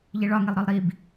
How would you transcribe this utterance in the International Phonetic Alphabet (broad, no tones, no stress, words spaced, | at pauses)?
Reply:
ʎiɭɒŋilˠɾɒlˠ ɾib